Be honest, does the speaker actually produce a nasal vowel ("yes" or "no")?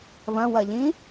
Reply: yes